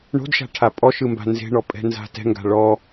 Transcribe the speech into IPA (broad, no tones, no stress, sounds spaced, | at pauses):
ɳ o̤ d ʃ a̤ ʈʰ a pʼ ɔ ʃ ɯ m b a̤ n z e̤ ɳ ɔ pʼ ɛ̤ n z a̤ t ɛ̤ ŋ ɡ a̤ ɭ ɔ